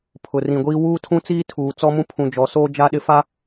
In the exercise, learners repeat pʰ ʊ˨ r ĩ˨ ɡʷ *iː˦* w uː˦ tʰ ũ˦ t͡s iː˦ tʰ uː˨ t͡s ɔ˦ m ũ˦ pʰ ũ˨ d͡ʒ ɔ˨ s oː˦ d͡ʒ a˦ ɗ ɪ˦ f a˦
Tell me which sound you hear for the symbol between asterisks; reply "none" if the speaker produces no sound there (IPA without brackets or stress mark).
iː˦